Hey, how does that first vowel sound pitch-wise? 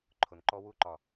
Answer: low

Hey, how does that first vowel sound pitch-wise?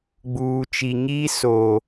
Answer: low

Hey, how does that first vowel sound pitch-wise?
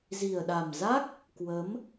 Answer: low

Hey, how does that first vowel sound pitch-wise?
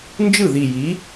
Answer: falling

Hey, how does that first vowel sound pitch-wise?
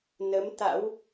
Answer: rising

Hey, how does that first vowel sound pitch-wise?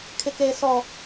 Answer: low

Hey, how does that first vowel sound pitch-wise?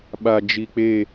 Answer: low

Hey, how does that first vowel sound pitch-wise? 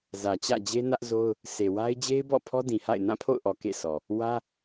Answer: low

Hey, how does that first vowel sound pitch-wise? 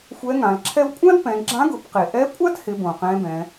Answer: rising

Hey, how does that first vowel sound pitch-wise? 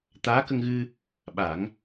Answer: rising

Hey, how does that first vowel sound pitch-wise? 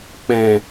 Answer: low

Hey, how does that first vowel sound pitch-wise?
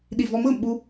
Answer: low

